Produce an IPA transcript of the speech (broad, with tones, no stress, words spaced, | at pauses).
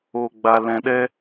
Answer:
o˧ɡ͡ba˧lɛ̃˧ɗɛ˦